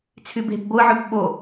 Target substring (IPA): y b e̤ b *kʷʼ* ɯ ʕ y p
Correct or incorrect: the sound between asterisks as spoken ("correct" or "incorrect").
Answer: incorrect